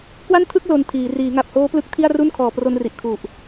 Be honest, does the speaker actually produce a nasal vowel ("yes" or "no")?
no